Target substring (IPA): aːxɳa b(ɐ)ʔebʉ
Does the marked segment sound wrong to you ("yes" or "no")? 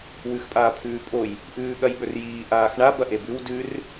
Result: no